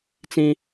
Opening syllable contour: high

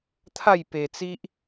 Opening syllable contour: falling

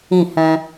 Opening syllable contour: falling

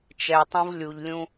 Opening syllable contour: low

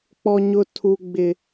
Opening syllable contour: high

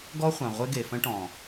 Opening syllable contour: high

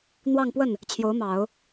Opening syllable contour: falling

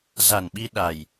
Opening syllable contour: low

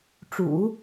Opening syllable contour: low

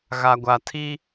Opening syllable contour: low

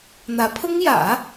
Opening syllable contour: rising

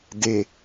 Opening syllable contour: low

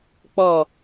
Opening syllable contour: low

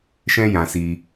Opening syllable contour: high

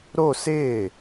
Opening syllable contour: falling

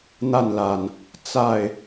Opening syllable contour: falling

